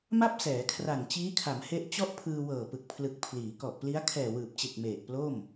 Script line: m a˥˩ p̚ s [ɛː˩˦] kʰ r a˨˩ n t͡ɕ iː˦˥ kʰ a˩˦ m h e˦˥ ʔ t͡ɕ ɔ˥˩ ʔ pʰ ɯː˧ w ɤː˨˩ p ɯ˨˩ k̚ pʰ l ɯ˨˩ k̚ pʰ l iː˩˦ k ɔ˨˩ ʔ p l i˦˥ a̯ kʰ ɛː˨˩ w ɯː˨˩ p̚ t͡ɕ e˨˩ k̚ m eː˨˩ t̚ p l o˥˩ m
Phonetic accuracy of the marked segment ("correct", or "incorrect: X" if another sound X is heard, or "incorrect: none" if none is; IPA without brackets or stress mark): correct